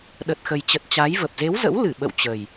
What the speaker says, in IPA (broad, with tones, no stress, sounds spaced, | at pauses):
ɗ ə˨˩ t̚ x ə˨˩ j t͡ɕ ə˨˩ t̚ t͡ɕ a˨˦ j v ə˨˩ p̚ z e˨˦ w z ə̰˧˥ w l ɨ˧˩ ɓ ə̰˧˨ w t͡ɕ ə˨˩ j